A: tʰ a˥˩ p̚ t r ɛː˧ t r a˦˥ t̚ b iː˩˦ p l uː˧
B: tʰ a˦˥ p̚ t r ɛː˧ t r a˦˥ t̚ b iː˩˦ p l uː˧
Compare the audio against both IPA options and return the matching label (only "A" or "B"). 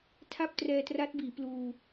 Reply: A